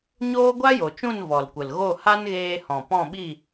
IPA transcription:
ɲoː˦ ɡʷa˦jo˨t͡ʃũ˦˨n vɔ˨lkʷə˨lɣo˦˨ ha˦nɣeː˧hɔ̃˨ pɔ̃˦˨ɓi˦˨

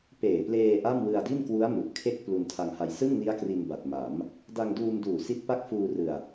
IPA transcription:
peː˨˩pleː˧ ʔa˥˩m wɯ˧a̯di˥˩n kwu˦˥a̯mu˨˩ʔ kʰe˦˥k̚ plu˧n tʰa˧ŋha˧j sɯ˥˩ŋni˦˥a̯kri˧n ba˨˩t̚ma˩˦m | da˧ŋduː˧mduː˨˩ si˦˥t̚pa˥˩k̚fuː˧rɯ˨˩a̯

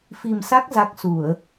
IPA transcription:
fi˨˩msa˦˥k̚ za˦˥k̚ su˧˩˨ə̯

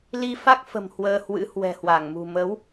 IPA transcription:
li˧fa˦˥k̚fə̤˨˩m hwəː˧hwɨ̰˧˥hwɛ̤˨˩hwa˧˩ŋ mṳ˨˩mə˨˦w

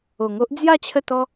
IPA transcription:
o˨˩ŋo˦ʔ d͡zja˥˧ t͡ɕʰə˥˧t̪ɔ˦

